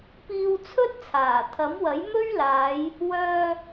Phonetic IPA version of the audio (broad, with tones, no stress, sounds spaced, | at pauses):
p iː˧ w t͡sʰ ɵ˥ t̚ t͡sʰ aː˨˩ t̪ʰ ɐ˨˥ m w ɐ˨˥ j m ɵ˥ ɥ l aː˨˧ j | w œː˧